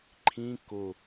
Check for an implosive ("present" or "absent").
absent